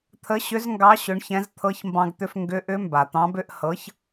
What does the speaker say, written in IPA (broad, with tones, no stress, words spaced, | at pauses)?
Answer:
t̪ʰə˨˥ɕʏ˨˥zŋɡɑ˨˥ ɕʏ˨˥ɳçɛ̃˨˥z t̪ʰɤ˨˥çmbɑ̃˧ɡt̪ʏ˧f ŋɡʏ˨˥ʔʏ˨˥ mba˩t̪ɑ̃˨˥bʏ˨˥ʔ hɤ˨˥ç